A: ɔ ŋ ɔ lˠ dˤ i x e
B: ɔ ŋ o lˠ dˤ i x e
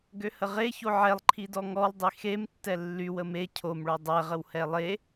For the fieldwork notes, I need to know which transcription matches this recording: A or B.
A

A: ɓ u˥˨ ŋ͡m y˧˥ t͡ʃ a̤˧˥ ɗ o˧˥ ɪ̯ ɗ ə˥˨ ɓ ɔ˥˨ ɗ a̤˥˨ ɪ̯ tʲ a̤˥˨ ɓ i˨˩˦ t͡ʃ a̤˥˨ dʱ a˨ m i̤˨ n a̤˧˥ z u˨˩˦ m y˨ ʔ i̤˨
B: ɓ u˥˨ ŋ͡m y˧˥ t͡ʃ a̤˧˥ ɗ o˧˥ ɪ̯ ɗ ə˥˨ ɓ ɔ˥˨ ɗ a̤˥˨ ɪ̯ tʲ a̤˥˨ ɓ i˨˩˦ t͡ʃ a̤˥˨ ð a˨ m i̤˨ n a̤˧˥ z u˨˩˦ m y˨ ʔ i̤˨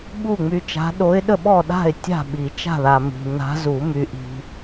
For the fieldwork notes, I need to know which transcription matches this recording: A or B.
B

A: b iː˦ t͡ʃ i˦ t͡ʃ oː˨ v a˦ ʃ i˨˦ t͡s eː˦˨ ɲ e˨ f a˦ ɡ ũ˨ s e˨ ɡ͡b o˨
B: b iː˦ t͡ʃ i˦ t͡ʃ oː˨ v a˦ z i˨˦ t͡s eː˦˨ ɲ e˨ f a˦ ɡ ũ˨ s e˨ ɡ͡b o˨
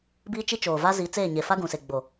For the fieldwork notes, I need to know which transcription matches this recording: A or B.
B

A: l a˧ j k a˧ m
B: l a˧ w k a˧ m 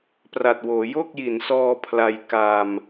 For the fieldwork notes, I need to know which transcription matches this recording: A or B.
A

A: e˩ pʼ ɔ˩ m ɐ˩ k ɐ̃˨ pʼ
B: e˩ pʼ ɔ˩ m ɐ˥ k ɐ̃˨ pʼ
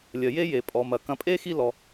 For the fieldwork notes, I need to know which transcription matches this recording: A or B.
A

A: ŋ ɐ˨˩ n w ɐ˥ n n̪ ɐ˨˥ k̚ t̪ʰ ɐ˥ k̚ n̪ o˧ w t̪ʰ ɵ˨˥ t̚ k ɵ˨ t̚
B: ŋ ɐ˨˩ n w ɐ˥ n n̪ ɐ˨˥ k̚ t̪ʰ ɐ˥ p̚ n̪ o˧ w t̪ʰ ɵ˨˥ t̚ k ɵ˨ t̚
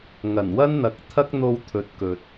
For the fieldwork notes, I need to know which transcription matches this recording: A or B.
A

